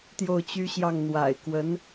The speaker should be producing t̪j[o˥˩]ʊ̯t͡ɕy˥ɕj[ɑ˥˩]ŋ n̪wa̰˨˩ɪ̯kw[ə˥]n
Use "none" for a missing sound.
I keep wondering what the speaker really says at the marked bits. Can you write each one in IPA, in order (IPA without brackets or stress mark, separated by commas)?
o˥˩, ɑ˥˩, ə˧˥